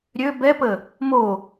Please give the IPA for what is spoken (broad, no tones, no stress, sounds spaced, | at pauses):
ɾʲ ø b ɛ p ə | m o